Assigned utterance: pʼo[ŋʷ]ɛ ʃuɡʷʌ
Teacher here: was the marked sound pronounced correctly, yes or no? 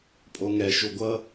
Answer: no